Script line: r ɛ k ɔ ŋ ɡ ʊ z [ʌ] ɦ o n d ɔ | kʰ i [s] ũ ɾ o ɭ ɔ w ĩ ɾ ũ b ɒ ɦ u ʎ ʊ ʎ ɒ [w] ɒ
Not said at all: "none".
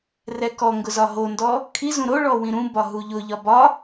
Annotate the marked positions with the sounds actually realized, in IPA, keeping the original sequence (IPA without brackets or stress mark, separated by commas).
ɒ, z, b